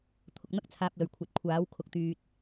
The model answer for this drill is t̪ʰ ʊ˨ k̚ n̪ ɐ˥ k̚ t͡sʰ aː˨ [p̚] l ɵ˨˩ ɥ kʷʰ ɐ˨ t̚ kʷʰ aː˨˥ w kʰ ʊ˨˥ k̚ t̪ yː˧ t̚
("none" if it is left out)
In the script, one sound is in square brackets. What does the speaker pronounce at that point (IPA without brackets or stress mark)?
p̚